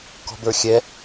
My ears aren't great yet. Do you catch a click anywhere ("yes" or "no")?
no